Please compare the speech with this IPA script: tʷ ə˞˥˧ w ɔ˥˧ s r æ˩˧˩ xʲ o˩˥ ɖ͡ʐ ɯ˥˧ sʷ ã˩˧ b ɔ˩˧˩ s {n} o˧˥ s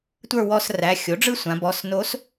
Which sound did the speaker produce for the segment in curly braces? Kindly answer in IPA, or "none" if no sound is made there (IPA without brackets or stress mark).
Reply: n